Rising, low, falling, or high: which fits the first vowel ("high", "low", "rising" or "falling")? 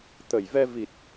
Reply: low